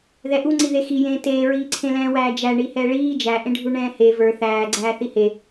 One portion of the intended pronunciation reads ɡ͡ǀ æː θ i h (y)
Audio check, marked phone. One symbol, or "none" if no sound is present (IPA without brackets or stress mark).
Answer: e